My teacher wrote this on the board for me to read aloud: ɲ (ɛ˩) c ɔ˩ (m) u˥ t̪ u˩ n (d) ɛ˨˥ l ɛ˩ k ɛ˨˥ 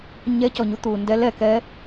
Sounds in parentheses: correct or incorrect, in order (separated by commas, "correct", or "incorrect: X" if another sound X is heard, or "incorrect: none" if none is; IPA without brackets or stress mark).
incorrect: ɛ˨˥, incorrect: ɲ, correct